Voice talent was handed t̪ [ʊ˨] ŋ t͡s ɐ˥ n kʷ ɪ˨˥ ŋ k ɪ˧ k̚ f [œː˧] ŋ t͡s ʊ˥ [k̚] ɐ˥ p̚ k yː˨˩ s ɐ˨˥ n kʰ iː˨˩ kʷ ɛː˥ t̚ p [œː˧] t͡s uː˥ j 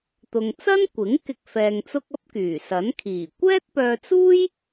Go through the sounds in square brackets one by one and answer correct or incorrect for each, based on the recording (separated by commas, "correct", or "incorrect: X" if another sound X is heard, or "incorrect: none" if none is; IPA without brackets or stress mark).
correct, incorrect: ɛː˧, correct, correct